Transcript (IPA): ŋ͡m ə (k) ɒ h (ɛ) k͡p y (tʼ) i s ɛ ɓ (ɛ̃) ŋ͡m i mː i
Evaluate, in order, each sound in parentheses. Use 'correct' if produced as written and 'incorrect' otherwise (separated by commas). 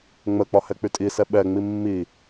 incorrect, correct, correct, incorrect